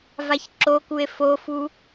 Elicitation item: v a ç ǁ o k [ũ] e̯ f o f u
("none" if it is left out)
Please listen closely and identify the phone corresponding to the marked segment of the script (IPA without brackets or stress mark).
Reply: u